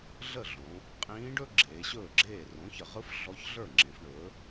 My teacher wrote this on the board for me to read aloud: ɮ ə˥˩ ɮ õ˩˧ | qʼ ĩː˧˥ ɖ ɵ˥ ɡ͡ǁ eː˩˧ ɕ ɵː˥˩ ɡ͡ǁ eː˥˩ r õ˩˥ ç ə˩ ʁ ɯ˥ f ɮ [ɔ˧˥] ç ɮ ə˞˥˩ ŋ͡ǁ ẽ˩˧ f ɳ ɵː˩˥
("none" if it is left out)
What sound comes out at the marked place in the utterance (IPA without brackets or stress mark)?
ɔ˧˥